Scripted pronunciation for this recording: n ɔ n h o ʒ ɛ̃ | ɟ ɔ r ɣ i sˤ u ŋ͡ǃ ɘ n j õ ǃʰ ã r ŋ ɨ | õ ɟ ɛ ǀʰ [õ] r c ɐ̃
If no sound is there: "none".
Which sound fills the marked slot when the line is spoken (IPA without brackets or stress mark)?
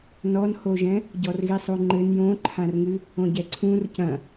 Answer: ũ